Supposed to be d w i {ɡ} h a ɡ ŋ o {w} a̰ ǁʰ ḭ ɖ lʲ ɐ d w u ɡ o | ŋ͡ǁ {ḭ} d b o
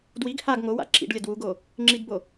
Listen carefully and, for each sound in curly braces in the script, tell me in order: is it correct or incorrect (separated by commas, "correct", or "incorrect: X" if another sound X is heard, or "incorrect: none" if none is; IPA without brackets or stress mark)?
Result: correct, correct, incorrect: i